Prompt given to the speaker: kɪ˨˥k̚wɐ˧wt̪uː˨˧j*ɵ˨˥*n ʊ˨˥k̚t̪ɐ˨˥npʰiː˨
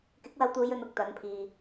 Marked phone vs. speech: incorrect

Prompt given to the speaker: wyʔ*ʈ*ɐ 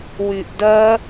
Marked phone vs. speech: incorrect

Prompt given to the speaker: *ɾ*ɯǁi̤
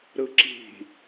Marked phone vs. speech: correct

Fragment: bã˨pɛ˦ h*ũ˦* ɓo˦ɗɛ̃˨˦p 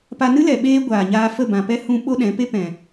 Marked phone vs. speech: incorrect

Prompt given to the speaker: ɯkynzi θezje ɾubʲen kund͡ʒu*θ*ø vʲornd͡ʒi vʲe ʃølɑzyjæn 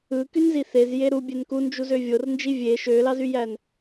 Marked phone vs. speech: incorrect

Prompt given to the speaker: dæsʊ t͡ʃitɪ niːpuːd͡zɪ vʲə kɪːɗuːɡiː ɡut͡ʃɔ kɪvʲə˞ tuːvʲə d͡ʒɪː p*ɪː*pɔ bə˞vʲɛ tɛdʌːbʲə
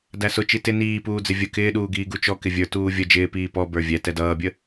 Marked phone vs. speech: incorrect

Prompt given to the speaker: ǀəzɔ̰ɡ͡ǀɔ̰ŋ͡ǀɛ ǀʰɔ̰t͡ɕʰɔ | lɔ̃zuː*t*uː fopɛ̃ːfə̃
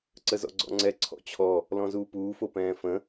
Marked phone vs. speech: incorrect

